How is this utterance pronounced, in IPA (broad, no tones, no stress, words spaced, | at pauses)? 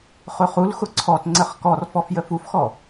χʊχulxʊ ǀʰɔtŋ͡ǀəχ kɔrfɔf jəfufxɔ